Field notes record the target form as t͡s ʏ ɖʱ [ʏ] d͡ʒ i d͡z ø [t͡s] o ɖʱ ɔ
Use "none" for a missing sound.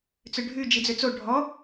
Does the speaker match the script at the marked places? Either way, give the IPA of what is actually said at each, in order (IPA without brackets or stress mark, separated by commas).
y, t͡s